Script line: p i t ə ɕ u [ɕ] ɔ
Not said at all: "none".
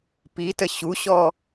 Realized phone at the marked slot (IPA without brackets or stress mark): ɕ